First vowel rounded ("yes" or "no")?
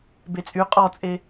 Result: no